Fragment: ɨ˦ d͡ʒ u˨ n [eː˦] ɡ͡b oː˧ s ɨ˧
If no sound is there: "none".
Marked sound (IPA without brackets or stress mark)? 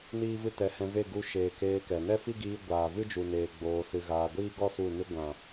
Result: eː˨